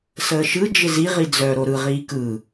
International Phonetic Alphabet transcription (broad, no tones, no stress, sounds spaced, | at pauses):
s əː ʃ ɯ d͡ʒ ɪ z i ʁ i d͡z œ ɾ o ɾ ɯ ʁ iː k ɯ